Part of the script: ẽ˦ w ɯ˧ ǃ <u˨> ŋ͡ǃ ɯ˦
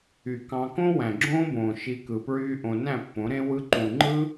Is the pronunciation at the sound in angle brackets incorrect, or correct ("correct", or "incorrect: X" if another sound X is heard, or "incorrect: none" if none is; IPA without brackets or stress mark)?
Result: incorrect: ũ˨